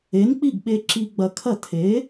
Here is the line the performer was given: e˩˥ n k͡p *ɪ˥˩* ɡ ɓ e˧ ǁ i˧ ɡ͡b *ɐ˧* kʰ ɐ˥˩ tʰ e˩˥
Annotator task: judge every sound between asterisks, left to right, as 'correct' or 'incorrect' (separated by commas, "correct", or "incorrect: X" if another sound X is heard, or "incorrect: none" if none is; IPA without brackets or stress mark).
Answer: incorrect: i˥˩, correct